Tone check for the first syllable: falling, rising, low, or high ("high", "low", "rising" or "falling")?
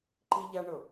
high